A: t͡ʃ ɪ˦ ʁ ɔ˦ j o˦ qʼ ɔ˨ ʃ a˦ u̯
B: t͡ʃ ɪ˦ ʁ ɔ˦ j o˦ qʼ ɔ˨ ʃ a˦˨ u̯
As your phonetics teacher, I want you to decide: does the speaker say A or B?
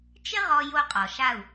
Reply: B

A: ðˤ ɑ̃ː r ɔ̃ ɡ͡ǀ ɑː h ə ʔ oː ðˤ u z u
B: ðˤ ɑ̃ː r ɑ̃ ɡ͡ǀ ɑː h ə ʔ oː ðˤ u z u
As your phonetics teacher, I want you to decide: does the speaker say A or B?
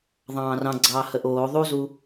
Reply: B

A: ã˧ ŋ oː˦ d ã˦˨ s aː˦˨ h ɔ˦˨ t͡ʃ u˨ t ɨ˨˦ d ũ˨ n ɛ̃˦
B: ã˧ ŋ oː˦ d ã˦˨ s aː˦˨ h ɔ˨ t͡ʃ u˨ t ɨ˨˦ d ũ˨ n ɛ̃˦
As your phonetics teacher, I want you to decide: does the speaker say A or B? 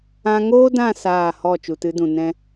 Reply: A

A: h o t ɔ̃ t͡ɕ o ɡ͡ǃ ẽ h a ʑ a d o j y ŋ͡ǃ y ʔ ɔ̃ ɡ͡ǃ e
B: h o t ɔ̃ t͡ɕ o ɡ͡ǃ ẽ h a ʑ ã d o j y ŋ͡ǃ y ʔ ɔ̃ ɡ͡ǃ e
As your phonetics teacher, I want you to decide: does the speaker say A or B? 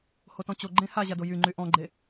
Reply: A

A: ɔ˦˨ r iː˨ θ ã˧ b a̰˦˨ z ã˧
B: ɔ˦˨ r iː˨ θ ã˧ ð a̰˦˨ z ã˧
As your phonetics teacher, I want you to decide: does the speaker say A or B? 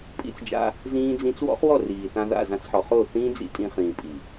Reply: B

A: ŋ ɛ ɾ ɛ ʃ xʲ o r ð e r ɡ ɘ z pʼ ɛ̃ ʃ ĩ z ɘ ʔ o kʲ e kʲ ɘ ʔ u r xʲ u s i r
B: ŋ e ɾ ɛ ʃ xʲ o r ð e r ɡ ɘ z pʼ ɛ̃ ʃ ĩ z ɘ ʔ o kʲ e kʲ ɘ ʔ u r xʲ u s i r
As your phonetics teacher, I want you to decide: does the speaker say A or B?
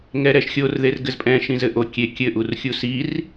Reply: A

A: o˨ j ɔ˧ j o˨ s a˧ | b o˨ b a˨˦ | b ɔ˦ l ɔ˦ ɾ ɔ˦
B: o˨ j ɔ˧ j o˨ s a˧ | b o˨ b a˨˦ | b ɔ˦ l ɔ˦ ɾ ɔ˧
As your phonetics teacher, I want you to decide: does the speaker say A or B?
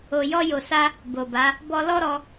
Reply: B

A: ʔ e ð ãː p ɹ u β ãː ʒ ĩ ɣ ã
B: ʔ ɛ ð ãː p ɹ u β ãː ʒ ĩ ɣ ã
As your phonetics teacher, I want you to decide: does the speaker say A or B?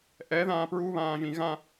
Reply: B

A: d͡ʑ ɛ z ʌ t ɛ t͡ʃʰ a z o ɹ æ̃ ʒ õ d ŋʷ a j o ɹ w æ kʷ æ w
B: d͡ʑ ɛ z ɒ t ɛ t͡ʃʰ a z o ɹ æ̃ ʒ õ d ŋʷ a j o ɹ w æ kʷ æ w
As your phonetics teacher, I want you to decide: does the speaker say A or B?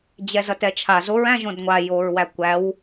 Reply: A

